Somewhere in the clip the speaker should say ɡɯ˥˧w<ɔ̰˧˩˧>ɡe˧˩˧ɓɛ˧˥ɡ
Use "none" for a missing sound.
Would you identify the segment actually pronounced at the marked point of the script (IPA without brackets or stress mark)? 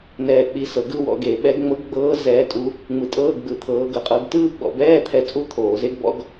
ɔ̰˧˥˧